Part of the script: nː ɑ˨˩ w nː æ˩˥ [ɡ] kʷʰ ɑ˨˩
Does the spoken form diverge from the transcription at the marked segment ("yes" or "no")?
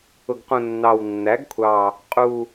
no